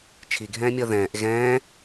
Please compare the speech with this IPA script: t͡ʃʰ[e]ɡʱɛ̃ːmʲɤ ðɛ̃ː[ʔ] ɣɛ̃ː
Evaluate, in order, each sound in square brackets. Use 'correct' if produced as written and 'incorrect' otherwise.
incorrect: i, correct

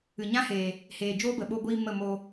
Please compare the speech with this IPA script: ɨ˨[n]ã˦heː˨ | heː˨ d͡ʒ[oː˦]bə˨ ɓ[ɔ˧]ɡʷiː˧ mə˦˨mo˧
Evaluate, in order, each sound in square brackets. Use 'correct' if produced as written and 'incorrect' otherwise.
incorrect: ɲ, correct, incorrect: o˧

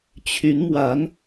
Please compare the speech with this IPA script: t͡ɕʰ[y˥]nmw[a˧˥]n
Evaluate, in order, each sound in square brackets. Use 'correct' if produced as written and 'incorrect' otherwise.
incorrect: y˧˥, correct

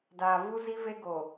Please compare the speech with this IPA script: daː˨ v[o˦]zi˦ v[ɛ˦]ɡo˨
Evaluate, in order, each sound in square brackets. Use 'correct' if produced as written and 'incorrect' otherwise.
incorrect: u˦, incorrect: e˦

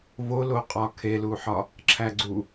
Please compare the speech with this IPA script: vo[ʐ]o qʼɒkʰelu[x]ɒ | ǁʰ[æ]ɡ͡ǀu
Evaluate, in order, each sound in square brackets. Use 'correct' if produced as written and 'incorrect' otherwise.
incorrect: l, incorrect: ħ, correct

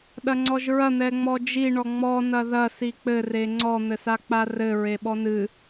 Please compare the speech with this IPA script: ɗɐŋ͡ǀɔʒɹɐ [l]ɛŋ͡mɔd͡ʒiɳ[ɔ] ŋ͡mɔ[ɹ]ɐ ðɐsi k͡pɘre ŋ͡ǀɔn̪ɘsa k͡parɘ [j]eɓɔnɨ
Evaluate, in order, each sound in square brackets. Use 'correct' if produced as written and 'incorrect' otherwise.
incorrect: n̪, correct, incorrect: n, incorrect: ɹ

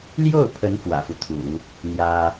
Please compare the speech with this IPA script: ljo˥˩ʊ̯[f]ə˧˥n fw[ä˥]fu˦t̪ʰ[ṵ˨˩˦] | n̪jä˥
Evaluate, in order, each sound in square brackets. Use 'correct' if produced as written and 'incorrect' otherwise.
incorrect: pʰ, incorrect: ä̰˨˩, correct

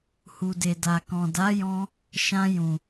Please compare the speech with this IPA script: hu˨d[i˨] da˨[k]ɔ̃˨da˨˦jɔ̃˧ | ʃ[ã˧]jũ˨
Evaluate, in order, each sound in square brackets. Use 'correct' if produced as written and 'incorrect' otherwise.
incorrect: e˨, correct, correct

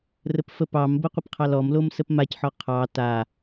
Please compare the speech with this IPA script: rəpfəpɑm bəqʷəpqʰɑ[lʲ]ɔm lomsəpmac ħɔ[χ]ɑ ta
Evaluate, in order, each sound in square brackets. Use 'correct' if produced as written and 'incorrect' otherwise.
incorrect: l, incorrect: qʰ

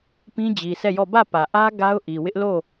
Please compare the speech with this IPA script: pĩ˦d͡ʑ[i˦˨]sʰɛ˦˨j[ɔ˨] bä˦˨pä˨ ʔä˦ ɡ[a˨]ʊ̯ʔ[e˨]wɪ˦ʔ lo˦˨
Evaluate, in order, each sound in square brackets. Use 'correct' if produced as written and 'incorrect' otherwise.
incorrect: i˨, incorrect: ɔ˦˨, incorrect: a˦, incorrect: i˨

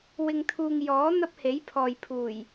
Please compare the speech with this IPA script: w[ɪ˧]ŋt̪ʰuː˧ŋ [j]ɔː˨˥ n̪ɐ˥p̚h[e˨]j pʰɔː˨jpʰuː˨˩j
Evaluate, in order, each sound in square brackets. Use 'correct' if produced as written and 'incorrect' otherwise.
correct, correct, incorrect: e˨˥

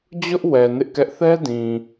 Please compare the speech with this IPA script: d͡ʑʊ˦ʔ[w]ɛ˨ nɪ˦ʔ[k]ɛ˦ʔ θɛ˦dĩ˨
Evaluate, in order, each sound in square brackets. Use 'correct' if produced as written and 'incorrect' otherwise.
correct, correct

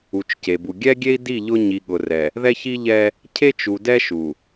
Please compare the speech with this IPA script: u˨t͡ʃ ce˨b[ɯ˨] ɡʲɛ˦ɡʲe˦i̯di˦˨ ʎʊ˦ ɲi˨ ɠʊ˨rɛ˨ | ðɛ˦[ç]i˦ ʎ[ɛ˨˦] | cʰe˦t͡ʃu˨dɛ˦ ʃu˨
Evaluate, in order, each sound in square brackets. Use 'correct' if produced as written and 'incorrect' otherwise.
incorrect: u˨, correct, incorrect: ɛ˦

